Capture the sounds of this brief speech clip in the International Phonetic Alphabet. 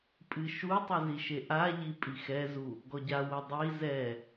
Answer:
pʼ ɨ ʃ u tˤ ɨ z i ʃ e ʔ a ʎ i pʼ i x ɛ z u | ɡ ɔ ɟ a w o dˤ i z ɛ

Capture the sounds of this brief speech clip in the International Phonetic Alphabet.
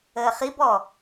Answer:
əː χ i b ɔ

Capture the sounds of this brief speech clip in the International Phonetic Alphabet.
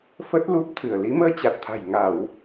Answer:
f ə˦˥ t̚ l u˦˥ p̚ t̪ʰ ɨ˧˩ ə̯ l i˨˦ m əː˧ t͡ɕ a˨˩ t̚ t̪ʰ a̤˨˩ j ŋ a˧˩˨ w

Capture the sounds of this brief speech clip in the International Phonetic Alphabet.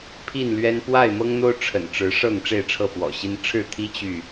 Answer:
pʰ i˥˨ n l ɥ ɛ˦ n p w a˥˨ ɪ̯ m ɤ˦ ŋ n̪ o˦ ʊ̯ ʈ͡ʂʰ ə̰˨˩ n ʈ͡ʂ ɻ̩˨˦ ʂ ɤ˥˨ ŋ ʈ͡ʂ e˥˨ ɪ̯ ʈ͡ʂʰ ɤ˥˨ f w ɔ̰˨˩ ɕ i˦ n ʈ͡ʂʰ ɻ̩˥˨ t̪ʰ i˦ t͡ɕ y˥˨

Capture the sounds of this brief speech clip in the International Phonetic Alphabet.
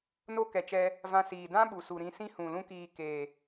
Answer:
n o˦ k ɛ˨ t͡ʃ ɛ˧ | v ã˧ s iː˨ d ã˦ ɓ u˨ s u˨ ɾ ĩ˧ s ĩ˦ h ũ˨ l ũ˦ k iː˧ k eː˨

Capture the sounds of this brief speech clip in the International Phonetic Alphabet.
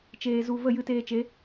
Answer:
t͡ʃ eː˧ z u˧ v ə˦˨ j ɨ˧ t eː˧ t͡ʃ e˨˦

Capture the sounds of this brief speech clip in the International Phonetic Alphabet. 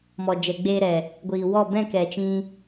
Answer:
m ɔ˨ d͡ʒ ɛ˨ ɡ͡b eː˧ ɾ ɛ˨ | ɡʷ iː˨ w ɔ˦˨ b ɛ̃˦˨ k ɛ˨ t͡ʃ ĩ˧

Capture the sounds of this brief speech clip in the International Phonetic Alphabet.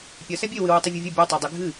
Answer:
pʲ ɐ s ɛ bʲ e w ɨ w u tˤ ɨ vʲ e vʲ ɛ bʲ ɛ tˤ a dˤ i ɡʱ ɨ

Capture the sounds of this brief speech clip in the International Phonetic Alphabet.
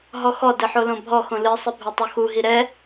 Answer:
ɦ ɔ x ɔ d ɘ ħ o l õ bʱ ɔ x õ l ɨ sˤ ɨ bʱ ɛ tˤ o x u ɦ i ɾ ɛ

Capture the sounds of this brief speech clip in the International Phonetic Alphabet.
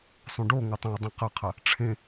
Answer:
sˤ ũ ɖ o ŋ ɐ tˤ ɐ̃ ʊ̯ dˤ ẽ q ɐ qʰ ɐ | ʈ͡ʂʰ ẽ

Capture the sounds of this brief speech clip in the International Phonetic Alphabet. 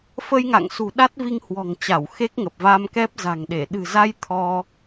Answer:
f ə˧ j ŋ a̰˧˨ ŋ s ṳ˨˩ ɗ a˦˥ t̚ v i˧ ŋ h w ɔ̤˨˩ ŋ t͡ɕ a˧˩ w x e˦˥ k̚ ŋ ə˨˩ p̚ v a˧ m k ɛ˦˥ p̚ z a̤˨˩ ŋ ɗ e˧˩ ɗ ɨ̤˨˩ z a˧ j t̪ʰ ɔ˧

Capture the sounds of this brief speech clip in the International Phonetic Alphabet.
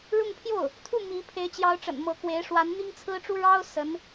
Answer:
ɻ ʊ˥˧ ŋ pʰ j o˥˩ ʊ̯ | t̪ʰ u˥˩ m i˧˥ pʰ e˧˥ ɪ̯ t͡ɕ j ɑ˧˥ ʊ̯ ʈ͡ʂ ə̰˨˩ n m ɤ˧˥ k w e˧˥ ɪ̯ ʂ w a˧˥ n n̪ i˥ ŋ t͡sʰ ɹ̩˥ ʈ͡ʂ u˥ ɻ ɑ˥ ʊ̯ s ə˧˥ n

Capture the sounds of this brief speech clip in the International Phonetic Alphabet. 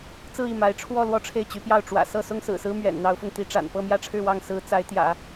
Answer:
t͡s ɹ̩˥˧ i˥˩ m a˧˥ ɪ̯ ʈ͡ʂʰ w ɔ˥˧ l w ɔ˥˧ ʈ͡ʂʰ e˥˩ ɪ̯ t͡ɕ y˧˥ p j ɑ˥˩ ʊ̯ ʈ͡ʂ w ä̰˨˩ s ɤ˥˩ s ʊ˥ ŋ s ɹ̩˨˩ s ɹ̩˥ m ɥ ɛ̰˨˩ n n̪ ɑ˧˥ ʊ̯ f ʊ˧ ŋ t̪ i˧˥ ʈ͡ʂ a̰˨˩ n p ɤ˥˧ m j ä˥˧ ʈ͡ʂʰ ɻ̩˥˧ w ɑ˥˩ ŋ s ɹ̩˧˥ t͡s a˧˥ ɪ̯ t̪ j ä̰˨˩˦

